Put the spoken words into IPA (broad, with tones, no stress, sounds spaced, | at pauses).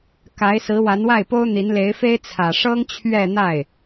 k a˧˥ ɪ̯ s ɹ̩˧˥ w a˧˥ n w a˥˩ ɪ̯ p o˥ ʊ̯ n̪ i˧˥ n l e˧˥ ɪ̯ f e˥ ɪ̯ t͡sʰ ä˨˩ ʂ ɤ˥ ŋ t͡ɕʰ ɥ ɛ˥˧ n̪ a˥˩ ɪ̯